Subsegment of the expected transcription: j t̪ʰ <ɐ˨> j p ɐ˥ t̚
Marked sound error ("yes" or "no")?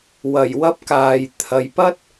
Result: no